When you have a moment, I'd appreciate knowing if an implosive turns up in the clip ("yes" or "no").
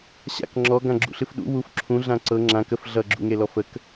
yes